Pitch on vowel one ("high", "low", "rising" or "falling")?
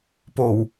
low